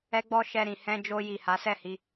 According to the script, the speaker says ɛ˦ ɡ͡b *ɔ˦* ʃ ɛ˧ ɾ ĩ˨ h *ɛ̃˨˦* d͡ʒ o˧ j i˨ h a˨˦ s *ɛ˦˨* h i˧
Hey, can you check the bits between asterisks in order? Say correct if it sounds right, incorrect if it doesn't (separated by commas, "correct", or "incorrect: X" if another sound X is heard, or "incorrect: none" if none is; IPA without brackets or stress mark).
correct, incorrect: ɛ̃˧, correct